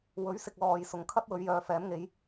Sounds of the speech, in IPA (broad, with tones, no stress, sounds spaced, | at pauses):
w ɵ˨˥ ɥ s ɪ˨ k̚ l ɔː˨ j s ʊ˨˩ ŋ kʰ ɐ˥ t̚ w ɵ˨˧ ɥ j œː˨ f ɛː˨˥ m ŋ e˨˥ j